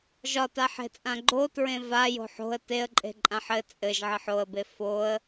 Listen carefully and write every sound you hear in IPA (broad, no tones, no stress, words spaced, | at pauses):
ʒɒtaħe̤t͡sʼã ɡ͡ǃotɹẽ va jo̤ħo̤ə̯ teə̯ǃʼe̤ ǃʼãħɘ t͡sʼɘʒʕɘħ oə̯be foə̯